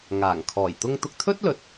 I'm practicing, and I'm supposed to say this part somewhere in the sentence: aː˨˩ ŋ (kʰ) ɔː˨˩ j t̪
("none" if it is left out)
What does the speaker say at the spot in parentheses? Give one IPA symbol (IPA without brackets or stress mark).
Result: kʰ